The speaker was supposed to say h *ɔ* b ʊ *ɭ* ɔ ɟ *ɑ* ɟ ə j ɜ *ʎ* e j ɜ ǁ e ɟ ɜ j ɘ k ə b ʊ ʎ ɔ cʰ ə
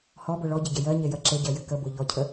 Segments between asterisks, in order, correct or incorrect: correct, correct, incorrect, incorrect

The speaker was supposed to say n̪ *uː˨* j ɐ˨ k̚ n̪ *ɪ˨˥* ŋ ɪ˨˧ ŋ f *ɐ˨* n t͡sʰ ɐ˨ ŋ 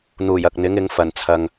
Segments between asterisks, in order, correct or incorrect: incorrect, correct, incorrect

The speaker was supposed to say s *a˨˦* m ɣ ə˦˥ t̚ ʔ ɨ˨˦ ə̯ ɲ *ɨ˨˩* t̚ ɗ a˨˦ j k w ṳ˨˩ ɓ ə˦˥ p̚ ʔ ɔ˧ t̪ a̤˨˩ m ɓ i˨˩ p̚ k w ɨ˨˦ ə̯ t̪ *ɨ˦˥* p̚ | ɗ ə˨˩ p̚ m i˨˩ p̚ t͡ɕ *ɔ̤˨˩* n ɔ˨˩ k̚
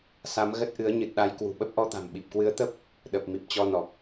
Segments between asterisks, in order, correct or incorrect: correct, correct, incorrect, incorrect

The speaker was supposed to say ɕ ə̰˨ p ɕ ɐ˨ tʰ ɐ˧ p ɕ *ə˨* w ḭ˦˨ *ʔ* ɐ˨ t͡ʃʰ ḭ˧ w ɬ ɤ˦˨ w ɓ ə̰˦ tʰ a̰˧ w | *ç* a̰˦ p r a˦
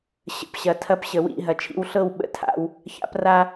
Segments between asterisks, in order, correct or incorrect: correct, incorrect, correct

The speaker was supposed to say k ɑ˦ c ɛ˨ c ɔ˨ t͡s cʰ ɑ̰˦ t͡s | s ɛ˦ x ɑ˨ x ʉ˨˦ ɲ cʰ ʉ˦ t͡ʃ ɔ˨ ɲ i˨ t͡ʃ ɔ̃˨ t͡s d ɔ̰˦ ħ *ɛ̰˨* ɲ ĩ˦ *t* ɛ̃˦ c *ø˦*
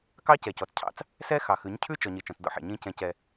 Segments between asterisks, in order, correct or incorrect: correct, incorrect, incorrect

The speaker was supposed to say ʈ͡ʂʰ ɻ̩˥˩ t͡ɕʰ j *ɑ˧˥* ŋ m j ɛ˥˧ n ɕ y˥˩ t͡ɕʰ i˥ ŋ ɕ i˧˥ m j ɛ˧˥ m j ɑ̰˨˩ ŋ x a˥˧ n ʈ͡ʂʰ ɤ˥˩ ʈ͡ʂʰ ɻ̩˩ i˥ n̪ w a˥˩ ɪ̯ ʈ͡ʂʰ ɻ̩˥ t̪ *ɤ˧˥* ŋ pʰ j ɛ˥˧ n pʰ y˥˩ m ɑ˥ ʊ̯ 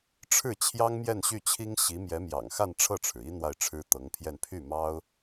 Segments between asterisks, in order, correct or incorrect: incorrect, correct

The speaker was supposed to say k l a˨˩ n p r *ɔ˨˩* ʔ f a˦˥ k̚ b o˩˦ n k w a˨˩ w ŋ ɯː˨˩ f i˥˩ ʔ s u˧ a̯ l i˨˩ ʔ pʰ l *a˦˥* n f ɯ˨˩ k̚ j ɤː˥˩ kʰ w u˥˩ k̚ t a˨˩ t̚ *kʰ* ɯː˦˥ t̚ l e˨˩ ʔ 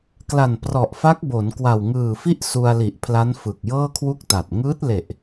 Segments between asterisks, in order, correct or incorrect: correct, correct, incorrect

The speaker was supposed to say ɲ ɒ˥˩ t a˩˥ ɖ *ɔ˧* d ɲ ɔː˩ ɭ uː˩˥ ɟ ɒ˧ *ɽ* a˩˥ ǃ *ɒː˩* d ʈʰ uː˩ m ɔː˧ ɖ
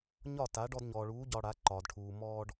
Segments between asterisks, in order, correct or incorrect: correct, correct, correct

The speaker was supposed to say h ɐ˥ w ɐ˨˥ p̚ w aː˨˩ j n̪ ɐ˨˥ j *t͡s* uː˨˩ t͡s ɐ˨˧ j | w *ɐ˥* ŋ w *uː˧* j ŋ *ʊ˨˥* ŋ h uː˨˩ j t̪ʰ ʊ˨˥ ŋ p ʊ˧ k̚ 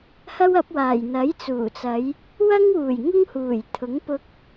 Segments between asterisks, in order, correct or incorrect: correct, correct, incorrect, incorrect

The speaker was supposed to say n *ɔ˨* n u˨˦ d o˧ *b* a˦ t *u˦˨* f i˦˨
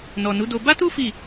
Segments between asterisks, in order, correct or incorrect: correct, correct, incorrect

